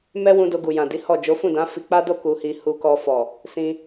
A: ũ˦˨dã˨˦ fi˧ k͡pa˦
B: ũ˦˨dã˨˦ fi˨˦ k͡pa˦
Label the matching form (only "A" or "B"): A